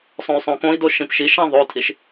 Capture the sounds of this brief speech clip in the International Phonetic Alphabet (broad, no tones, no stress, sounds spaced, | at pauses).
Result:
sˤ õ y̯ sˤ õ k õ i̯ d o ʃ ĩ p ʃ i ʃ ã ðˤ o tʰ i ʃ